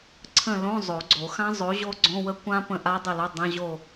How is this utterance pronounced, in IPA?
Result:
ǀʰə̃˦˨lõ˧˥˧ zˤo˨˩˦ɡ͡ǀo˨˩˦ xã˦˥zˤo˨˥ ʑo˦˥ɡ͡ǀõ˧˥˧wə˦˥kʷã˦˥ pə̃˦˨ʔa˦˥dˤə˦˨lo˧˥˧ dˤə̃˧˥˧ʑo˦˨

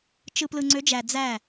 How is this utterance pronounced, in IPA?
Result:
t͡ʃɯ˧plɯ˧ ŋ͡ǀø˨˦d͡ʒæ˨ d͡zæ˦˨

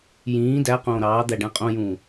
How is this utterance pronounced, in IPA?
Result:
jĩː dæ qõːɾɑːd̪æ ɖæ̃qʼõjũː

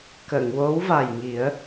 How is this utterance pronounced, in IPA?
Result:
kə˨˩˨ŋwo˧˥wva˨˩jŋi˨˩˦ə̯

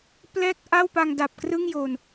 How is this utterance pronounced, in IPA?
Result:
plɛː˥˩k̚ʔa˥˩wpa˧ŋ da˨˩p̚krɯ˥˩ŋjo˨˩n

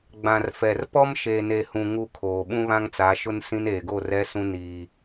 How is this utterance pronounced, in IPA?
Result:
ɡ͡bã˨rfɛ˨rpɔ˦m ʃe˨ne˨hũ˨ ŋu˦˨kʰoː˨ ɓũ˦βã˦ŋt͡sa˨˦ʃʊ˦n sĩ˦n eː˨ɡo˦˨rɛ˦sũ˦ niː˦

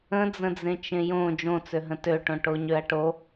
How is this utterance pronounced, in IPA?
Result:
ə̃d͡zə̃d͡zẽ t͡ʃẽjõ d͡ʒõt͡søɦə̃ tøʈõ ʈoɲøɐ̯ʈo

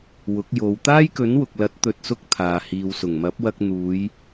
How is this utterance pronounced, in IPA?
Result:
wʊ˨˥k̚jo˨˧w t̪aː˥jkɵ˨˥nwʊ˨k̚lɐ˨˥t̚ t̪ɵ˧t̚sʊ˥k̚t̪ʰaː˨ hiː˨wsʊ˨˩ŋ mɐ˨˥p̚wɐ˧k̚ n̪uː˨˧j

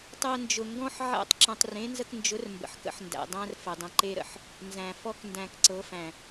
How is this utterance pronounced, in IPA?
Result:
tˤɤ˧nd͡ʒʊ˨ŋɡɔ̃˦ħ ʕæ̰˦tˤ ǁə̃˧tˤ rẽ˨˦nzə˧knd͡ʒʊ˨˦r mbə̰˨ħkə̰˦ħndæ̰˨ dˤæ̃˦r fə˨dˤə̃˧ǃe˦ɾə̰˨ħ | nzæ̃˨fɔ˦k ndæ̃˧kǀɤ˨˦fæ̃˨

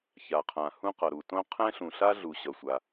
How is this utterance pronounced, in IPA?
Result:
ça˩qʰã˩ hũ˥qʌ˩ɾu˩ tõ˥ qʰɛ̃˥ɬũ˩ɬa˥ɮu˩ ɕʌ˩sʷa˩

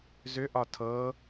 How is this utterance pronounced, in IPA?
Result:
zʏʔɒ tʰɤ

